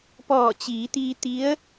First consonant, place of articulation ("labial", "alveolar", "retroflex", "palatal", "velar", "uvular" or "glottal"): labial